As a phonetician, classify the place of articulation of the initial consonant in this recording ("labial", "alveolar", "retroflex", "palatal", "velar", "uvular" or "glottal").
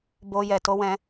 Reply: labial